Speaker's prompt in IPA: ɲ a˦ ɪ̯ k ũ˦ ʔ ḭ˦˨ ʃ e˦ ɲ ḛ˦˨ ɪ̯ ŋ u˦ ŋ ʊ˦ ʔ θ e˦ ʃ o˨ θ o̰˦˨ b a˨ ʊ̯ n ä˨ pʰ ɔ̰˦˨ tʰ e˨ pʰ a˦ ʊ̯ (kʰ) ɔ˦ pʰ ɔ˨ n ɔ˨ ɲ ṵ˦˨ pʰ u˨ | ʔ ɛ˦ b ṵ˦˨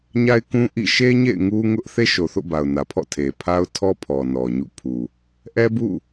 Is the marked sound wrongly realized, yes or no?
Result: yes